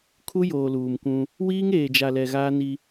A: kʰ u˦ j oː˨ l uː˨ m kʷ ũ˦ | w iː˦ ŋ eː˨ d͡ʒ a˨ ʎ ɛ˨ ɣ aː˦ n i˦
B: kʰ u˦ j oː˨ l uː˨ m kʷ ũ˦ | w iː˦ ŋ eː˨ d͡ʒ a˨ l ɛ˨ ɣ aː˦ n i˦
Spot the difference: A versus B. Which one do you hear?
B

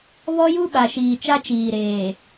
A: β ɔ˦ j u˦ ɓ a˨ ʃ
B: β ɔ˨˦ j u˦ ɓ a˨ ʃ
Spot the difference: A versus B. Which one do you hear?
A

